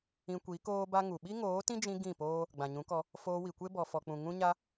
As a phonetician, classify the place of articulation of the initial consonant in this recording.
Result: velar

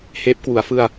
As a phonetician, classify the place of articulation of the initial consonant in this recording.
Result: glottal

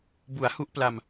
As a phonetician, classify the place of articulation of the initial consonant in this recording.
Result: labial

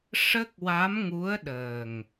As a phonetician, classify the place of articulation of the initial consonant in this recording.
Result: retroflex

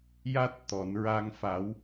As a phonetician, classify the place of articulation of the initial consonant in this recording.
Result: palatal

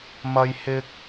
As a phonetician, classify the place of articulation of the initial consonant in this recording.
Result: labial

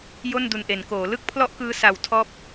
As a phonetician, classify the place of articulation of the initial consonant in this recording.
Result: palatal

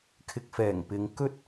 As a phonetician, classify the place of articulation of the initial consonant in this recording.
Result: velar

